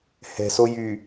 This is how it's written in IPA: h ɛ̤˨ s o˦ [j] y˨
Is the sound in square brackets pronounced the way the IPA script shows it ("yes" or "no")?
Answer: yes